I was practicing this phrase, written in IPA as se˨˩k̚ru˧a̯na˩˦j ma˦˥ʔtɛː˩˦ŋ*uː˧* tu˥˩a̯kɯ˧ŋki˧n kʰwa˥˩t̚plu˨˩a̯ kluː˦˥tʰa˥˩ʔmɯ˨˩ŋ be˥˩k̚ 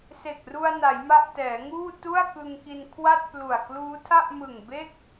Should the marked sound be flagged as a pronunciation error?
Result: yes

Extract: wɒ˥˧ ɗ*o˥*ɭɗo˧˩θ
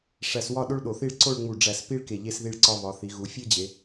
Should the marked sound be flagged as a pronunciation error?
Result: no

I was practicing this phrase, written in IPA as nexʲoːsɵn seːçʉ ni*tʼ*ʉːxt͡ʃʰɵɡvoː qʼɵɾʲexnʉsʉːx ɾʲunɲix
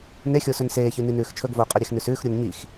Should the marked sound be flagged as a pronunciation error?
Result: yes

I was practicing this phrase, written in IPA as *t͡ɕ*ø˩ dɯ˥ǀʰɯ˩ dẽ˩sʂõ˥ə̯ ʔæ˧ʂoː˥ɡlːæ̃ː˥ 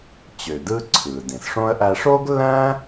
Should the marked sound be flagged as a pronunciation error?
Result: no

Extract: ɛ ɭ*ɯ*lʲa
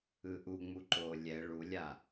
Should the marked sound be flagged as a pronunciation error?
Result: yes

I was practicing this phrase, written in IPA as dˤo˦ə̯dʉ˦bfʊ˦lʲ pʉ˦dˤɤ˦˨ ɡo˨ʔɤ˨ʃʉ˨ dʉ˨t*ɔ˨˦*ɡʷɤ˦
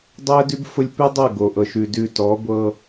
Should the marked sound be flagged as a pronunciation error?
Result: no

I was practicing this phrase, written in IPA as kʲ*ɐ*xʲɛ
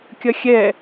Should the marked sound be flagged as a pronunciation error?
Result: no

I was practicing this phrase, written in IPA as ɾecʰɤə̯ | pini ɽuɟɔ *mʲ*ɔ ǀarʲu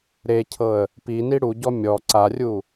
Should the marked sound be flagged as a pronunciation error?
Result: no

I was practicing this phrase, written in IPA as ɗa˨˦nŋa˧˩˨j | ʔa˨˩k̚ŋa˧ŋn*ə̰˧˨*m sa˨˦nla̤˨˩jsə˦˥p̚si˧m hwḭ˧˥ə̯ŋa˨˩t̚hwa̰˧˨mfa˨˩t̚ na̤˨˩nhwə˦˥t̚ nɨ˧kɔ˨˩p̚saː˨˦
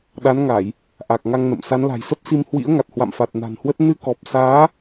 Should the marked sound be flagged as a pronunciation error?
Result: no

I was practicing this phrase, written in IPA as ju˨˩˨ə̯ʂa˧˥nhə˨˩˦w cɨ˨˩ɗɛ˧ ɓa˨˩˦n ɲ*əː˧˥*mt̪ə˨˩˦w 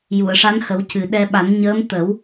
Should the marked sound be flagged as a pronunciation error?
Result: no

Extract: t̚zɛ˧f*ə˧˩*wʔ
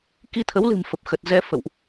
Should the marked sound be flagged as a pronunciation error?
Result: yes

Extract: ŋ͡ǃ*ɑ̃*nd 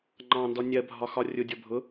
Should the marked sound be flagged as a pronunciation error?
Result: no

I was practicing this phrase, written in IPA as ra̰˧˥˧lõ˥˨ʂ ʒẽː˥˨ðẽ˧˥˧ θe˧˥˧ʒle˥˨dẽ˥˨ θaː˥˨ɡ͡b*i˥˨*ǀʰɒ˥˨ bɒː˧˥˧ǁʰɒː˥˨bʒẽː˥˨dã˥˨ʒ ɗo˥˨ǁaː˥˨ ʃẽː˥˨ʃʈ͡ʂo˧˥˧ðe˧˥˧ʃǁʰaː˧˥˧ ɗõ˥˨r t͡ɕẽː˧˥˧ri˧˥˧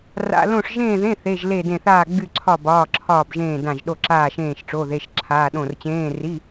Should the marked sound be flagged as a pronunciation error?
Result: yes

